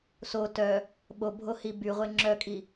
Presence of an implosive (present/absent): present